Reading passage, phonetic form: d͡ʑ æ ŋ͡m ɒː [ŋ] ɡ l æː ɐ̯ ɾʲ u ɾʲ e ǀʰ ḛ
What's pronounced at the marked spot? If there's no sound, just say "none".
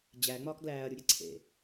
k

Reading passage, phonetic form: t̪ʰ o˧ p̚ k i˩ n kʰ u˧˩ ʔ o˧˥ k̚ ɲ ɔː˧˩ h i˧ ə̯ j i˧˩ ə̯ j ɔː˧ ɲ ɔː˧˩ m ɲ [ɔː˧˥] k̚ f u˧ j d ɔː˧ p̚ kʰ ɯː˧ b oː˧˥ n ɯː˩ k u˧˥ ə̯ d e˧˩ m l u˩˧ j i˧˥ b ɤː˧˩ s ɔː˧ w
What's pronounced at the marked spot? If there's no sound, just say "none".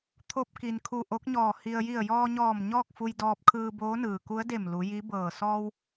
ɔː˥˨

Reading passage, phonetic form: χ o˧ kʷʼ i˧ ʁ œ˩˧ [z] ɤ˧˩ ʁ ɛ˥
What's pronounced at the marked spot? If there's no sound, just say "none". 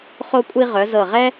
z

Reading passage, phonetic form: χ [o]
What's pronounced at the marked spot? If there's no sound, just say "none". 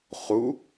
u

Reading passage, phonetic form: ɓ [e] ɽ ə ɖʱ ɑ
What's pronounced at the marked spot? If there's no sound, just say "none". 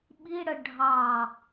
i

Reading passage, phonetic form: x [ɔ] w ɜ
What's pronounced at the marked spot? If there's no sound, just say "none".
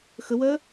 ə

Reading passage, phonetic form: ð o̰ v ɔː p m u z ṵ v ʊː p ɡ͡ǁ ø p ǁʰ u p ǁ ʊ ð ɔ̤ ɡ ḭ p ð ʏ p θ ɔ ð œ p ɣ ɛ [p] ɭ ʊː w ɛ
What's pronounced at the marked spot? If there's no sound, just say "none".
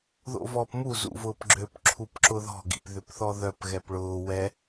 p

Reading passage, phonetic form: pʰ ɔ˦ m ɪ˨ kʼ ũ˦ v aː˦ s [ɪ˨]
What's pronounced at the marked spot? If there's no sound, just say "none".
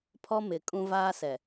ɛ˨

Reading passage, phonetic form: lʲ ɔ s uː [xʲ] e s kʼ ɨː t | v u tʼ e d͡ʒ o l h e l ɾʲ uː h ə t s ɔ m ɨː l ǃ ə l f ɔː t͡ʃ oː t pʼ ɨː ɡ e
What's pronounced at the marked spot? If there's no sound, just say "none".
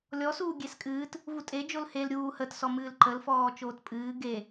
ɡʲ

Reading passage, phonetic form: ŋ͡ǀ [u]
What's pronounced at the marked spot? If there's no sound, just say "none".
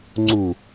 u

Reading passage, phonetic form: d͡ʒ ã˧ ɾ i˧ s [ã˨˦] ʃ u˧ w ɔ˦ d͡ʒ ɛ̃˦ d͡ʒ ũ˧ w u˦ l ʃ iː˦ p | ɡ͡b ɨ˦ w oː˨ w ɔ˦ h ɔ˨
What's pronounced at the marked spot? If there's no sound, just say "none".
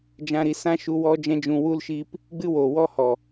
ã˦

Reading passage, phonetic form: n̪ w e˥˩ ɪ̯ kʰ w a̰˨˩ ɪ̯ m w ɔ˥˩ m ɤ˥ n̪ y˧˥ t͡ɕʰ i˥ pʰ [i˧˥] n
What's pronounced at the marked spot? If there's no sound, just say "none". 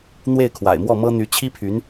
y˧˥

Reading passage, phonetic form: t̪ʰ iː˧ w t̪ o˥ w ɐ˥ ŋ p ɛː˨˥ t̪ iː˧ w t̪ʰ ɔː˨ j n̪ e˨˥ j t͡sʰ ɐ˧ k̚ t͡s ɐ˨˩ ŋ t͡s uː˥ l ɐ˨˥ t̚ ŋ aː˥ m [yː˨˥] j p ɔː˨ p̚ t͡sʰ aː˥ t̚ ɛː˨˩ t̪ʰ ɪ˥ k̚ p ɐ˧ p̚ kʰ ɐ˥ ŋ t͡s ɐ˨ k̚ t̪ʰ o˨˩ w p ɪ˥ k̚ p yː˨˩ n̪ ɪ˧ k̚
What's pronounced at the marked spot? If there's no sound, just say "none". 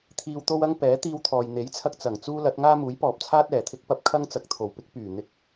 uː˨˥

